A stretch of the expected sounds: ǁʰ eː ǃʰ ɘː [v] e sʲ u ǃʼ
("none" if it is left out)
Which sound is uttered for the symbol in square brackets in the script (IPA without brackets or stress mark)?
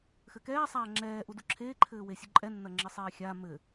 w